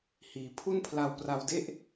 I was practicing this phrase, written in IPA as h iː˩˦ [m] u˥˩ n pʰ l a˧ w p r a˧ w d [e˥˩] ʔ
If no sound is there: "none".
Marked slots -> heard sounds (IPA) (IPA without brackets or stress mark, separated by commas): pʰ, e˥˩